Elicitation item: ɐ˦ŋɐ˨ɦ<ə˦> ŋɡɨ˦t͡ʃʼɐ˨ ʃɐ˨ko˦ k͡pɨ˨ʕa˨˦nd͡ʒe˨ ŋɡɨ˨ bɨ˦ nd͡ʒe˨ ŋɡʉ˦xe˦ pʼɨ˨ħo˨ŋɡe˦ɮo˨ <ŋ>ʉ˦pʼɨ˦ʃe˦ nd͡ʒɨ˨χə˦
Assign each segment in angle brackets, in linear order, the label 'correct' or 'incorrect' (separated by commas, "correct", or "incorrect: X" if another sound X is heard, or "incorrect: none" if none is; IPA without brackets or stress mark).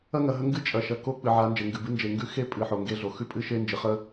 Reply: correct, incorrect: x